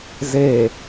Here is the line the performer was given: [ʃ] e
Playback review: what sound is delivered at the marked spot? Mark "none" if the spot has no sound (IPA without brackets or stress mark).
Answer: z